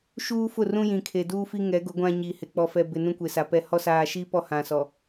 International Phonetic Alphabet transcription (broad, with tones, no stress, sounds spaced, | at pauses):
ʃ uː˦ f ʊ˦˨ r ũ˦ j ĩ˨ kʰ e˨ d uː˦ f i˦ ŋ ɛ˨˦ ɡ ʊ˨˦ ɡʷ ã˦ ɲ i˨ h ɪ˨ k͡p ɔ˨ f ɛ˨ b ɪ˨ n ũ˦ kʷ e˨ s a˨ p ɛ˦ h ɔ˦ s aː˨ ʃ i˦ p ɔ˦ h ã˨ s ɔ˨